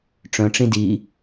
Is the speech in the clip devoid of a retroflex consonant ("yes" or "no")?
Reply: no